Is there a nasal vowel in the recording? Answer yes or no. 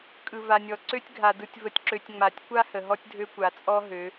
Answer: no